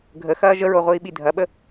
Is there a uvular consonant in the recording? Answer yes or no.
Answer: yes